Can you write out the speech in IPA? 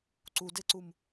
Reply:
ǀ u d e ǀ u m

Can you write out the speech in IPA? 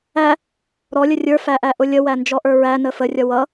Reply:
æ | ɾ ɔ lʲ ə rʲ ə˞ f æ ʔ æ ʔ ʊ lʲ ə w æ n d͡ʒ ɔ ʔ ə˞ ɹ æ n ə f ə rʲ ʌ w ʌ

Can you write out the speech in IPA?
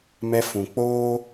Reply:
m ɛ˧ f ũ˨ k͡p oː˦

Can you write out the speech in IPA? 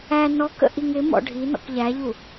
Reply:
æ n ɔ k ə̰ ʔ i ŋ ɪ m ɔ̰ ɖʱ i n ɔ̰ k ʎ æ ʎ u

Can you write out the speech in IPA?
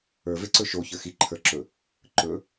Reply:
ə˞ v e ǀ ɵ ʃ o ç ə˞ x i ǃʰ ə˞ ǁ ɵ | ǃ ɵ

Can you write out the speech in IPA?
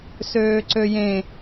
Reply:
s øː ǀ ø j ẽ

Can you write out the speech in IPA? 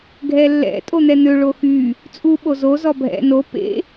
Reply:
ɡʱ ɛ lː ɛ̰ tʼ o n̪ ɛ n̪ ø ɭ o x y | t͡sʼ u ɓ o z o z ɔ bʱ ɛ̰ n o p ḛ

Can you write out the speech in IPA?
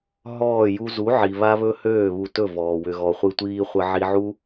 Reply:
ɦ ɔː˦˨ j u˦ z u˨˦ ʕ i˨ β a˦ β ɵ˦ h øː˦˨ β u˧ t ɵ˦˨ v ɔː˨ w ʏ˧ ɣ ɔ˧ χʷ ɨ˦ tʷ iː˧ χʷ ə˧ ʕ i˧ ʕ u˦

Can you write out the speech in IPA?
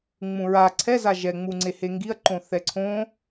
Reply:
ŋ͡m ũ ɹ a ǀʰ ɛ z a ʒ ɛ ŋ͡m u ŋ͡ǀ e h e ŋ ɡ i ɐ̯ ǃ õ θ ɛ ǀʰ õ

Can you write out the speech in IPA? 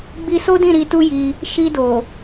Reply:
ɡ͡b i˧ s o˦ d ĩ˦˨ ɾ i˧ t u˦ j i˧ | ʃ i˧ d o˨

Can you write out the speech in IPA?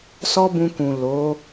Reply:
s ɔ˦ b ũ˧ k ũ˨ l o˨˦

